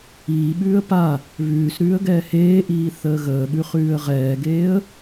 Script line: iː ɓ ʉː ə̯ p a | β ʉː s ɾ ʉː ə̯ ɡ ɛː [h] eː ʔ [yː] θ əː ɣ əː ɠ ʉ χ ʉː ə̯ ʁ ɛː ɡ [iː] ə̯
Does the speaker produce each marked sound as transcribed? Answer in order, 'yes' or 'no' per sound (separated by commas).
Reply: yes, no, no